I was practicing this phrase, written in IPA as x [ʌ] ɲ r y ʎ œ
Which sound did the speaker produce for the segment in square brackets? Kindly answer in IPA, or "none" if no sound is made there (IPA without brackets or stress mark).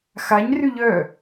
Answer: a